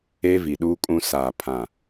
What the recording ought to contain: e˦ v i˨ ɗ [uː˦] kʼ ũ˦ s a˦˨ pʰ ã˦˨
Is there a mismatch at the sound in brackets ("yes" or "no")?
no